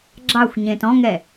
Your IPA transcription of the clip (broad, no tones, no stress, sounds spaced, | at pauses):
ɡ͡ǁ ɑ xʷ ɲ ẽ t ɔ̃ ŋ ɛ